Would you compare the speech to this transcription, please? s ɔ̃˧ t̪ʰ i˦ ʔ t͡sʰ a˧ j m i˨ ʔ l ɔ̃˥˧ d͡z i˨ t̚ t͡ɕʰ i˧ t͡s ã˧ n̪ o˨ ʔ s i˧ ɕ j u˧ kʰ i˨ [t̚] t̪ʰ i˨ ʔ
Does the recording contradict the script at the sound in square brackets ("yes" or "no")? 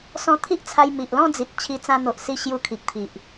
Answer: yes